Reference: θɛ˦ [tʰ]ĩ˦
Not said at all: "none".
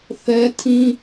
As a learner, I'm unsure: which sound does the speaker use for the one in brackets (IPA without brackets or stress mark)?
tʰ